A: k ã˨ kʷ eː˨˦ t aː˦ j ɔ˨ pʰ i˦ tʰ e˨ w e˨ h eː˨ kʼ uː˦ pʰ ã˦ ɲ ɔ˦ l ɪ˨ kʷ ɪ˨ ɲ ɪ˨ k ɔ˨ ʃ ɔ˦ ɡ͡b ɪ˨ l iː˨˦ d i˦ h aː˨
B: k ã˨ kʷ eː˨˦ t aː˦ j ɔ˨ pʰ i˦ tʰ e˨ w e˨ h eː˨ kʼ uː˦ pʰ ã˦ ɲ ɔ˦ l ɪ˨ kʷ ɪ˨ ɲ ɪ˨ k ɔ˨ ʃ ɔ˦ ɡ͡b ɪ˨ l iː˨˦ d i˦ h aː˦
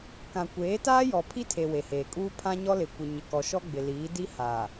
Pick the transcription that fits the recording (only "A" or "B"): A